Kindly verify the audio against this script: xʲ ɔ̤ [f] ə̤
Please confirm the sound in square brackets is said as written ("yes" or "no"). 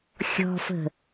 yes